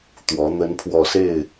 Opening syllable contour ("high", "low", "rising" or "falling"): rising